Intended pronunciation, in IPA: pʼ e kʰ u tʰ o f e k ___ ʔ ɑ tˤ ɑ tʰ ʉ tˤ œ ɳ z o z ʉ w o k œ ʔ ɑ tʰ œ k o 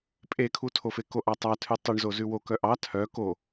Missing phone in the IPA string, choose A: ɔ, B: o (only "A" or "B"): B